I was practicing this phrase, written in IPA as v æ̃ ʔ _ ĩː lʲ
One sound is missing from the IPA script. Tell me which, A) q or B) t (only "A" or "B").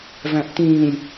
B